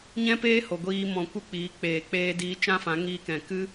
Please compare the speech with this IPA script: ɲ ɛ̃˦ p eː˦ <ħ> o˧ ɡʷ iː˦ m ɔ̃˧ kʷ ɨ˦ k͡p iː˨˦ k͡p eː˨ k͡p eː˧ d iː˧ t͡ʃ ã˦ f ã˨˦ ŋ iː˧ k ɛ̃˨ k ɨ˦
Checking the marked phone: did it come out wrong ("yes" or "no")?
yes